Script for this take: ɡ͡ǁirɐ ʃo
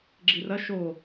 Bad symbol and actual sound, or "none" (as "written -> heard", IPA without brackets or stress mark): none